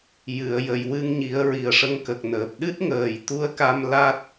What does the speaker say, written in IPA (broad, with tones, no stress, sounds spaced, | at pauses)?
j ɨ˨˩˨ ə̯ j ə˨˩˨ j w ɨ˧ ŋ ɲ i˨˩˦ ə̯ ɹ i˨˩ ə̯ ʂ ə˧ ŋ k ə˨˩ k̚ n əː˨˩ p̚ ɗ ɨ˦˥ t̚ ŋ əː˨˩ j t̪ u˧ ə̯ k a˧ m l a˦˥ t̚